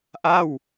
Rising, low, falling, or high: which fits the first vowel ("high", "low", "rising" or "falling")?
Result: falling